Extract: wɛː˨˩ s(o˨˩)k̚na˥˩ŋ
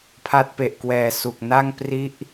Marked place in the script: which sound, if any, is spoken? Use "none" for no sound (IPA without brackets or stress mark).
u˨˩